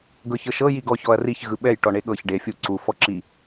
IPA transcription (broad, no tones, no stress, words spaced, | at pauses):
ɡɤçɤʃɤ jiɡɔ çɔɐ̯riç ɣɯɓɛj ʈɔɳeɠɤç ɖe fʲu ǀu fɔǁi